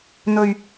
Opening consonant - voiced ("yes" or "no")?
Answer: yes